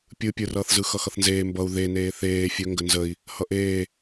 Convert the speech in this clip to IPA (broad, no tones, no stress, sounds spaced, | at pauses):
pʲ ɯ pʲ ɯ r ʌː θ z ɯ x ʌ x ʌ θ n z eː m b ʌ u̯ ð e n eː θ eː fʲ ɵ ŋ ɡ ə n z ə i̯ | h ʌ ʔ eː